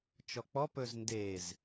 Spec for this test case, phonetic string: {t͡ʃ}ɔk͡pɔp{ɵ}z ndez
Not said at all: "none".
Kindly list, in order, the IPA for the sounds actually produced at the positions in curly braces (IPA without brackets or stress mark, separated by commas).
t͡ʃ, ɵ